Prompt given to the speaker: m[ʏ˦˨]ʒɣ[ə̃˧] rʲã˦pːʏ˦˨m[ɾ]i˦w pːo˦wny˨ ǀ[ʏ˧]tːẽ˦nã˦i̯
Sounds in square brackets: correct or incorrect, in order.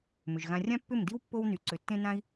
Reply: incorrect, incorrect, incorrect, incorrect

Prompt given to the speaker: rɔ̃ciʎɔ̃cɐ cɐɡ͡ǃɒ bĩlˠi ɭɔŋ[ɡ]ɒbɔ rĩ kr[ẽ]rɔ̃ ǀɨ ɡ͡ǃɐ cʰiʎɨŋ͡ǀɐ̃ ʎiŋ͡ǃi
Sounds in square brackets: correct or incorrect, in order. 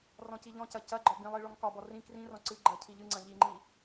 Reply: incorrect, incorrect

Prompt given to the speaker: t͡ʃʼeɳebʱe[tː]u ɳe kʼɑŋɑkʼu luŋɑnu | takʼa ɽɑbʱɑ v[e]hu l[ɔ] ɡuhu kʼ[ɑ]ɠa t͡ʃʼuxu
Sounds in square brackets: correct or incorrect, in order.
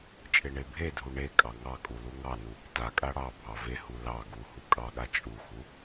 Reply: incorrect, correct, incorrect, correct

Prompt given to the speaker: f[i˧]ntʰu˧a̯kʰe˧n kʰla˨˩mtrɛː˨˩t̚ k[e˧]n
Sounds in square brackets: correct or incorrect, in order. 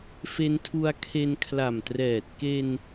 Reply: incorrect, correct

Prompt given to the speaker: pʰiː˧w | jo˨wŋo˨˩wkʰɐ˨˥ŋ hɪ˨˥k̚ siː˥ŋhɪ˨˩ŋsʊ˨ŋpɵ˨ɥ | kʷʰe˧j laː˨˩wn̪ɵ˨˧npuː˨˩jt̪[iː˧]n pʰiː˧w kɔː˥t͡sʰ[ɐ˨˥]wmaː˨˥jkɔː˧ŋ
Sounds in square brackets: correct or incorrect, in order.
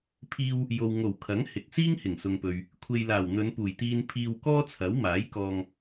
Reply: correct, correct

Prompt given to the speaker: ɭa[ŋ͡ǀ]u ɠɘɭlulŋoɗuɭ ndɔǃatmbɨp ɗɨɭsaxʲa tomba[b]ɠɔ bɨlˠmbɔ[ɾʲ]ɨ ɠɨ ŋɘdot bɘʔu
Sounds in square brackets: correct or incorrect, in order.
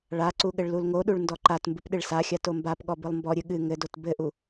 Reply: incorrect, incorrect, correct

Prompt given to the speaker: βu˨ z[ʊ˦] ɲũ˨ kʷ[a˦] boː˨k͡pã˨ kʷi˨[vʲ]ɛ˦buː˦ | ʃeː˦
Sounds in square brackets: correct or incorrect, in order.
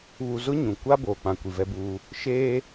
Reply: correct, correct, incorrect

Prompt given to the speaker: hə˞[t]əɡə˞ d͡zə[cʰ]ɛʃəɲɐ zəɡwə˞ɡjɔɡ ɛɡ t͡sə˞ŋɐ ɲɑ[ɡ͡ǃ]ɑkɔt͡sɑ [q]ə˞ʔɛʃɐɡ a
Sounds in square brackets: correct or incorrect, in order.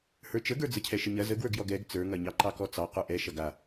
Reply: incorrect, correct, incorrect, correct

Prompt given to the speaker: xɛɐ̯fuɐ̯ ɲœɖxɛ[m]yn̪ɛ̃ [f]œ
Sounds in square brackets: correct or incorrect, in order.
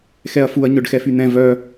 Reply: incorrect, incorrect

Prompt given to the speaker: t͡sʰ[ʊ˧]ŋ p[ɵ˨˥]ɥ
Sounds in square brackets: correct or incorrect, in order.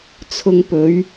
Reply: correct, correct

